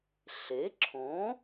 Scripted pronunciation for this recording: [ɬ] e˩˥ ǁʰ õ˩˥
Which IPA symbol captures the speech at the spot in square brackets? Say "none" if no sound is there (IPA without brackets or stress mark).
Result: ɬ